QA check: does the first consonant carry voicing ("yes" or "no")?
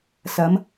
no